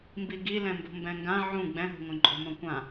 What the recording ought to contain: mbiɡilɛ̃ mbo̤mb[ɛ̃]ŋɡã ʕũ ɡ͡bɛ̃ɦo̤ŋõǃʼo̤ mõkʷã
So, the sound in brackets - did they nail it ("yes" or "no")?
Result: yes